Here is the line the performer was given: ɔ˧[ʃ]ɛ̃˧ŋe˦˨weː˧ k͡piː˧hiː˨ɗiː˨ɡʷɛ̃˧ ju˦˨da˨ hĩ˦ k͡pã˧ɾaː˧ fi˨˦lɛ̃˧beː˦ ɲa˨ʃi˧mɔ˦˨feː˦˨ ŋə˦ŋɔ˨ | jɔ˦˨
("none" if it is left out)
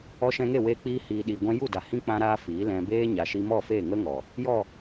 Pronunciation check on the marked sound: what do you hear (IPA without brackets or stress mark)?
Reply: ʃ